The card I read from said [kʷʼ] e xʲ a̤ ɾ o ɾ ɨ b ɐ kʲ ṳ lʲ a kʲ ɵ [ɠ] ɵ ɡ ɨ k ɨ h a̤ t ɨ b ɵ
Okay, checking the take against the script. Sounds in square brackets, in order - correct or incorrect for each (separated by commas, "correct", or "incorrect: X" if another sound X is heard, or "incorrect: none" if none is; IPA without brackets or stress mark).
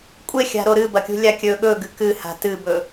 correct, correct